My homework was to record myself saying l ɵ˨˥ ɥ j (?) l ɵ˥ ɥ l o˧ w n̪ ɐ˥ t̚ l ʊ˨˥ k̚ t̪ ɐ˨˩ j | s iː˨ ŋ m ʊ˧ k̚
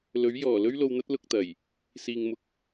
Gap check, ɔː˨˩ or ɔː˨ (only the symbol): ɔː˨˩